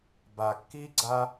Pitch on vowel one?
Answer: low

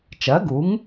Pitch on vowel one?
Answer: rising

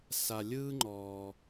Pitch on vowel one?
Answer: low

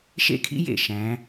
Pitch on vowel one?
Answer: high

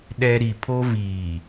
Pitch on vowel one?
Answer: high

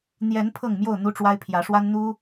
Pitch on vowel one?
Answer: rising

